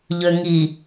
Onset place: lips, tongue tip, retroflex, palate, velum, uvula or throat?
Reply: palate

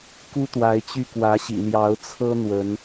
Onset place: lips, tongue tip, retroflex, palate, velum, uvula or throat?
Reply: velum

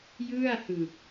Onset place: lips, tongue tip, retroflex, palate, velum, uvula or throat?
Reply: palate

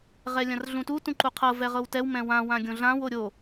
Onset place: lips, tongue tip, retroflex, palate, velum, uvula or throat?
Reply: uvula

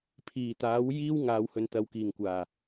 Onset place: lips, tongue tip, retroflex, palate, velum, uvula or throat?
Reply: lips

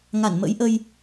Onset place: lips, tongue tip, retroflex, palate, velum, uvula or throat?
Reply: velum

